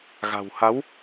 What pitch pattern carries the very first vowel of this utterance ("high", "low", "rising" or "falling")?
low